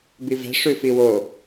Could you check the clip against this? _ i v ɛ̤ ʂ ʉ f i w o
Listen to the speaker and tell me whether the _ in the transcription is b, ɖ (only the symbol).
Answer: b